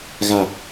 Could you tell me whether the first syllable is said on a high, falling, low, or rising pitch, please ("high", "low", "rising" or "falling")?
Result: low